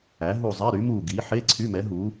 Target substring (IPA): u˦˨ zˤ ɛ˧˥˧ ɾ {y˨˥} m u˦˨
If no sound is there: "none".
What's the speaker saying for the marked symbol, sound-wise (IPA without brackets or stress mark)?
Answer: y˨˥